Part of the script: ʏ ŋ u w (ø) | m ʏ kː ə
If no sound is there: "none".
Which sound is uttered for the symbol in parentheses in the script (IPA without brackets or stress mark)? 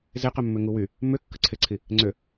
y